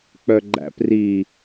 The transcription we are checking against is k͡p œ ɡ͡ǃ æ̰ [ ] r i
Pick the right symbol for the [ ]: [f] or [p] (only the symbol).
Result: p